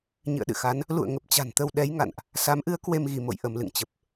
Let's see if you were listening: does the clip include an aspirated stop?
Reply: no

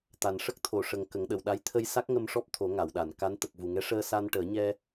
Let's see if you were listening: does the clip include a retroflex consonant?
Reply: yes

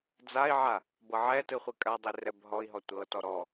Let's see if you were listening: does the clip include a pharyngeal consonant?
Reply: yes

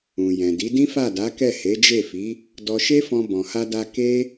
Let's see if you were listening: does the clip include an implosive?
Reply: no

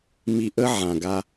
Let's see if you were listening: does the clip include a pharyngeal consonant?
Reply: yes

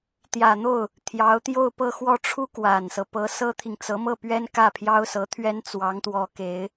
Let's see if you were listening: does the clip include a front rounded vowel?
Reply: no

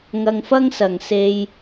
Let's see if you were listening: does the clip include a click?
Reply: no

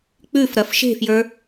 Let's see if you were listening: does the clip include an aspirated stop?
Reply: no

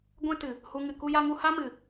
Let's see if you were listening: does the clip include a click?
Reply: no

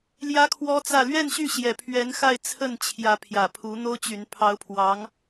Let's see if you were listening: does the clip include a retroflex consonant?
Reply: no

